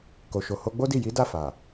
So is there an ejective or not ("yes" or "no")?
no